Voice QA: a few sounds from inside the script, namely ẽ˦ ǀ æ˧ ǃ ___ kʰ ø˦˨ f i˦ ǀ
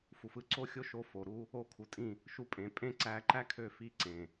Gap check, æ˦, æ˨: æ˦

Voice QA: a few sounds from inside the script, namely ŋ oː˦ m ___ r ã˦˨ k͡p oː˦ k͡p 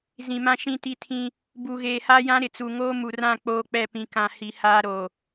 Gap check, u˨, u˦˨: u˨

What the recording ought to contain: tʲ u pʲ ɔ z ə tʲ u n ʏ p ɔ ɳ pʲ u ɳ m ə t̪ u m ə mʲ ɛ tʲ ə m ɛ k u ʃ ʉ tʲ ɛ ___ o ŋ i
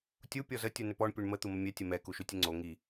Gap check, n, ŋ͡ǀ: ŋ͡ǀ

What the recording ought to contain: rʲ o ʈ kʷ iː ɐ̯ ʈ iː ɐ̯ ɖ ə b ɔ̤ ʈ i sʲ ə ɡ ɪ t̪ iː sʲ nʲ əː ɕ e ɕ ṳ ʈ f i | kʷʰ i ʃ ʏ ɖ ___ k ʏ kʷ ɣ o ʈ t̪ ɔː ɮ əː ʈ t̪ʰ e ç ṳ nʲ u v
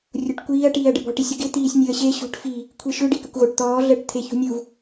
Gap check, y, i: i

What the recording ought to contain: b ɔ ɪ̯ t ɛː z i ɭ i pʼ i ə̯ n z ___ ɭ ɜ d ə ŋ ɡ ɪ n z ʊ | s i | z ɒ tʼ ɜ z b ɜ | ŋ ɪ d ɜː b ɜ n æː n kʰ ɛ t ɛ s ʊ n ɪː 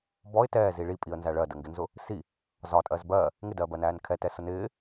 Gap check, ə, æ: æ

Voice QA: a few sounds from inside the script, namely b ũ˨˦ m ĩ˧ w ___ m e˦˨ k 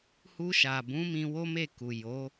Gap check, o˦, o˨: o˦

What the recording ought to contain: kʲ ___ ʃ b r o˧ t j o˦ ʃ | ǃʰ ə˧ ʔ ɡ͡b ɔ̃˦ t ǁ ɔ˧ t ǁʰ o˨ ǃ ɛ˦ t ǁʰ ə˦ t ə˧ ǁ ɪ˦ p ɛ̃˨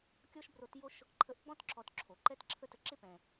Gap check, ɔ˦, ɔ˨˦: ɔ˦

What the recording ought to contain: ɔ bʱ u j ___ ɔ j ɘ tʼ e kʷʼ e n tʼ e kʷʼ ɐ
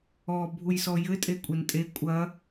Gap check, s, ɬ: s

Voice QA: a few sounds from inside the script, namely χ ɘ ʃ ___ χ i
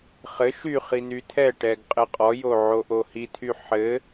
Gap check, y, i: y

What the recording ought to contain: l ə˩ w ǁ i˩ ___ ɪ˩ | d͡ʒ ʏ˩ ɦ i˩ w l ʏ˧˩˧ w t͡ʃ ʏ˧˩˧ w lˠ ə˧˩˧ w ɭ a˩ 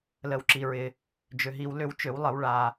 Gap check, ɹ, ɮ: ɹ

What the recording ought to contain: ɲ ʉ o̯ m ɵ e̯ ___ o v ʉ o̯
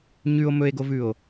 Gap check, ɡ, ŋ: ɡ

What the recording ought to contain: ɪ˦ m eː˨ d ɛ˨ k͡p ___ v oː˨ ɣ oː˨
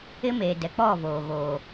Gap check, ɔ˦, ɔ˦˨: ɔ˦˨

